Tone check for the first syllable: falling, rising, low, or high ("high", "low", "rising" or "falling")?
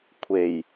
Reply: low